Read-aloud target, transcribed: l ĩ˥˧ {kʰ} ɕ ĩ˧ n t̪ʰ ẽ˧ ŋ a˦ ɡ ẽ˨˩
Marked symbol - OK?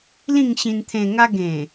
no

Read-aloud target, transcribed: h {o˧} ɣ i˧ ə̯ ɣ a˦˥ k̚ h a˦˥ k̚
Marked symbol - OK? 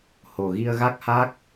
no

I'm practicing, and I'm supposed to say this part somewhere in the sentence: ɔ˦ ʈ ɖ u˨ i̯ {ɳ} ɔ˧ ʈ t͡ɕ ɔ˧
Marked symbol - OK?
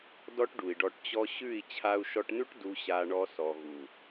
no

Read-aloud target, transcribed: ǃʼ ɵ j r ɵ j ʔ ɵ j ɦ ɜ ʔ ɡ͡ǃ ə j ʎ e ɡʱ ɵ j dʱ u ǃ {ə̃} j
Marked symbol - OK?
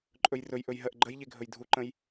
yes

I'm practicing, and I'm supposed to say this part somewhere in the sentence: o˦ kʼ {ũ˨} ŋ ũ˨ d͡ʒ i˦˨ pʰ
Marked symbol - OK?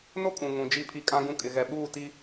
yes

